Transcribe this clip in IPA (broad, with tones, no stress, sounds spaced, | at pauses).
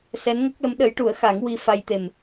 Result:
s ɛ˧˥ n ŋ ə˦˥ k̚ l ə˧˥ m ɗ ə˧˥ j ʈ u˨˩˦ ə̯ x a˨˩˦ ŋ w i˧ f a˧ j t̪ e˨˩ m